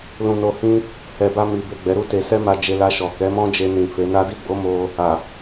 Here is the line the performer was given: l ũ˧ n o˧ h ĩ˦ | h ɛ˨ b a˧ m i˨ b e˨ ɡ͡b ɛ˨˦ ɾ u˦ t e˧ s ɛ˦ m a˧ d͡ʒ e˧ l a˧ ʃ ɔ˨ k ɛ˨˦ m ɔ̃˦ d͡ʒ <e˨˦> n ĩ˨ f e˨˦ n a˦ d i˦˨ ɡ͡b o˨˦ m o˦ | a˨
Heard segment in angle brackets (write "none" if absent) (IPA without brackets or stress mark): e˧